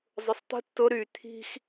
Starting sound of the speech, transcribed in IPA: zˤ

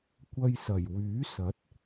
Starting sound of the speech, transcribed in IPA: kʷ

